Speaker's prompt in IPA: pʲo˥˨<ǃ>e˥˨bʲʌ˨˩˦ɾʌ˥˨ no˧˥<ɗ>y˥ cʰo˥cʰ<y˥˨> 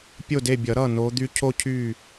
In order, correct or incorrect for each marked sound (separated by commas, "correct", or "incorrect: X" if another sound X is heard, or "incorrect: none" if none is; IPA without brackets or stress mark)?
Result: incorrect: d, incorrect: d̪, correct